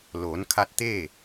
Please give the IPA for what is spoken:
l oː˩˧ n kʰ a˧ t̚ t̪ eː˥˨

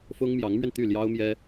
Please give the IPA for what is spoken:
f ʊ˥ ŋ m j ɑ˧˥ ŋ m ɥ ɛ˧ n t̪ y˥˩ l j ɑ˥ ʊ̯ m j ɛ˥

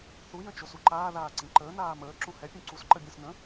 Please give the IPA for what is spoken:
θ u j ə̃ t͡ʃ o s u ǃ aː ð aː ǀ ĩ ǃ əː n aː m əː ǁ ũ h ɛ pʲ ũ ǀ u s ǃ ə bʲ ə̃ s n ə̃

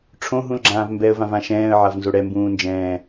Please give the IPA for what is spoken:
ʈ͡ʂʰ õ ɦ ũ l ɡ͡ǁ ãː v m b ɛ ə̯ v ã v ã ʃ ɛ̃ː ə̯ ʕ a v n z o ɽ ɛ m b ũː n d͡ʒ ɛ̃ː

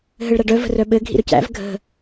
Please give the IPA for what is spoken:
ɦ ɘ ɭ ɾ a ɖ œ v ə̤ r œ ɓ ɘ ɡʱ ḭ ɾ ɵ c æ̰ v ɡʱ ə̤

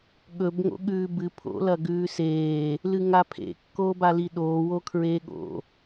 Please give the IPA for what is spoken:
ɠ ɵ b ŋ o̰ ɠ ʉː b ɨ pʰ o̰ l ɐ ɡ ʉː s eː | l ɨ ŋ a pʰ ḛ kː oː b a l i ɗ oː w o kʰ ɹ eː ɠ o̰

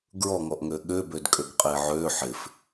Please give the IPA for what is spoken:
ɡ ɹ ɔ ŋ ɔ ʔ ŋ ø ɠ ø b ø d kʼ ø ɡ qʼ e ʕ ø ħ ɪ f

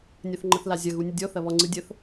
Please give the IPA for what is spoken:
nʲ ɐ θ ŋ͡ǃ ə θ l a zʲ ɐ ɣ u nʲ ə dʲ ɔ θ ɐ β ɔ ŋ͡ǀ ɯ dʲ ə θ

